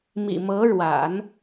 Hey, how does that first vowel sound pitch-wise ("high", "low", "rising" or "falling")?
low